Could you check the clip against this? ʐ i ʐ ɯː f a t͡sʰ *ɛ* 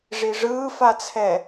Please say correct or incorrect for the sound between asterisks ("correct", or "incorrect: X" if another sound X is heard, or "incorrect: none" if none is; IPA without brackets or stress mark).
correct